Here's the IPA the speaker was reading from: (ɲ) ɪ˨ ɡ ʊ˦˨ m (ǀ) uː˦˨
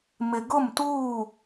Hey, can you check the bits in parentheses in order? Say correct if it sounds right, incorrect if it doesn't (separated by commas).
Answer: incorrect, incorrect